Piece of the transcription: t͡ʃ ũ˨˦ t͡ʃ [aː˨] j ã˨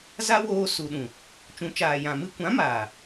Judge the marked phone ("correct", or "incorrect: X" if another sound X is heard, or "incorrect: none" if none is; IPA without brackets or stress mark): correct